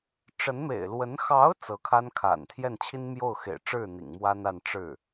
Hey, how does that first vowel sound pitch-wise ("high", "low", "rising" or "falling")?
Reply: rising